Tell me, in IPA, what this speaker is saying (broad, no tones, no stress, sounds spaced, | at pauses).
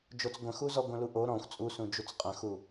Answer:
d͡ʒ o t͡s ɡʷ ə̃ x u z ɔ ɡʷ ə̃ l u ʔ o ɾ ɔ̃ xʷ t͡sʼ u s ũ d͡ʒ u t͡s qʼ ə̃ x u